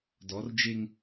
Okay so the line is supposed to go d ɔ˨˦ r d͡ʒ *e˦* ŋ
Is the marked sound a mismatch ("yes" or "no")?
no